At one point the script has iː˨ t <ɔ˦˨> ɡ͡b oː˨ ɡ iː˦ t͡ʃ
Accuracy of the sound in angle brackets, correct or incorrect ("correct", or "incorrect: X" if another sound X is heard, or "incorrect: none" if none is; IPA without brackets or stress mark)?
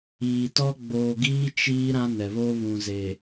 incorrect: ɔ˦